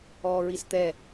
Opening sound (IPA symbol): ɔː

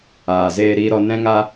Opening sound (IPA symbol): aː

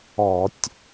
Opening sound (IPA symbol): ɔ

